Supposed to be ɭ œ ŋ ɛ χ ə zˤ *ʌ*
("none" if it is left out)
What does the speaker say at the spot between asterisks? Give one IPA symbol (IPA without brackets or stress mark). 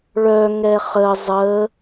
ə